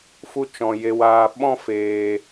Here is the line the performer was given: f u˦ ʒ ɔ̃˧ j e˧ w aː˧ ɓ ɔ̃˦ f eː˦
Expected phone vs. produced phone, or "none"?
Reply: ʒ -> t͡ʃ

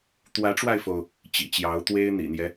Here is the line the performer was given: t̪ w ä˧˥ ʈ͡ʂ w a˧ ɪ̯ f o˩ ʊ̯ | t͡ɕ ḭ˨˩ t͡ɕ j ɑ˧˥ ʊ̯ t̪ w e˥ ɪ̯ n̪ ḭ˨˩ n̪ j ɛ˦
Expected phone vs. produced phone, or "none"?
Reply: none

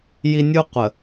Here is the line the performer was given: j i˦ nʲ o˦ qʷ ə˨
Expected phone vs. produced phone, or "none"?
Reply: o˦ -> u˦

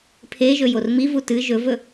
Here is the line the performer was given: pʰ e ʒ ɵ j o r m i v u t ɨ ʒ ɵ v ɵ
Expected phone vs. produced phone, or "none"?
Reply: none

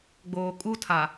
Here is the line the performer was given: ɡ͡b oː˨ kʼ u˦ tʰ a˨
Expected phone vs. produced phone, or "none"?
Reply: none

